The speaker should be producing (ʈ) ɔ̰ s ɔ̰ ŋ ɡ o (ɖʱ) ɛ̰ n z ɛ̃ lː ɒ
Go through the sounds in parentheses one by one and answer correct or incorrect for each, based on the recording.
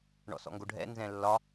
incorrect, correct

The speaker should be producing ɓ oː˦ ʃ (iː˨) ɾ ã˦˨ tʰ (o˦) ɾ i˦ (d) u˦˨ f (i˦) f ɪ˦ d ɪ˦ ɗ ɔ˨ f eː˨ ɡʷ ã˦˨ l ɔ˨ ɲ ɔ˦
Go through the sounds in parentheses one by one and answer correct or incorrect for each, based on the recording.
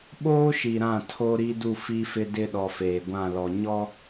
incorrect, correct, correct, correct

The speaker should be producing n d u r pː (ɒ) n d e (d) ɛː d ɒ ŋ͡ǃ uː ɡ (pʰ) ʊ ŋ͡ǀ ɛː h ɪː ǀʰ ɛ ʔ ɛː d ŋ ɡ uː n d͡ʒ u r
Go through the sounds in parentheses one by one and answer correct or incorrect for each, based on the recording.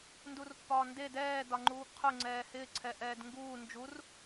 incorrect, correct, incorrect

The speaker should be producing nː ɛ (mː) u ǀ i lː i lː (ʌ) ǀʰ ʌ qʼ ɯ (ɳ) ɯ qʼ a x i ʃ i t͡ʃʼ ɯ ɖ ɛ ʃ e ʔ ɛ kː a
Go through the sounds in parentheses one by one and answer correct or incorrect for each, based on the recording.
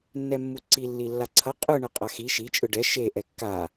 correct, incorrect, correct

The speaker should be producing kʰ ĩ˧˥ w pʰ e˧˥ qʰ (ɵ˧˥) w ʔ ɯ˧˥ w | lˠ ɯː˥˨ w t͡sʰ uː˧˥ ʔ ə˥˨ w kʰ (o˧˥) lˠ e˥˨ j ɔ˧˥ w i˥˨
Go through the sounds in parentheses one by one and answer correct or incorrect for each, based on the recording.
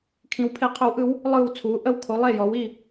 correct, correct

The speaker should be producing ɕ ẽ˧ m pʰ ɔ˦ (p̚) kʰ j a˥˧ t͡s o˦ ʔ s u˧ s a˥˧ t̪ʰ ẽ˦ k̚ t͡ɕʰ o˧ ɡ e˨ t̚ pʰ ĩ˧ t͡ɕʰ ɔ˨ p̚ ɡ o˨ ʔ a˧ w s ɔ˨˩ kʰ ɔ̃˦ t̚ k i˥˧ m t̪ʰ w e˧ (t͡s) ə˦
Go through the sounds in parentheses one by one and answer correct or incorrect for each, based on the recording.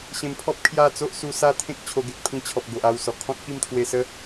correct, incorrect

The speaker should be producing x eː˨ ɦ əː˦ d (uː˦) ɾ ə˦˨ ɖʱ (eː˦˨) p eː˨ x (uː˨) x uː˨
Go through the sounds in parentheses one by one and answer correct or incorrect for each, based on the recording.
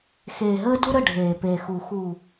incorrect, incorrect, incorrect

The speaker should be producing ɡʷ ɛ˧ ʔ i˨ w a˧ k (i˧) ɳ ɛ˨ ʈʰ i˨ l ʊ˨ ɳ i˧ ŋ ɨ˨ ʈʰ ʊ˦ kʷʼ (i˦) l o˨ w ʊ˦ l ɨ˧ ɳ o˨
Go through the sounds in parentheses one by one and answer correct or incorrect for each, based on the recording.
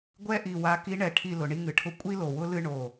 correct, correct

